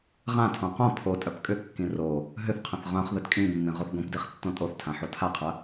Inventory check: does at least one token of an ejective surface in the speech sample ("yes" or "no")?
yes